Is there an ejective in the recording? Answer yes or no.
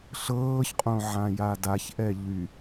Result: yes